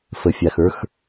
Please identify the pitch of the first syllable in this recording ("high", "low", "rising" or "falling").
low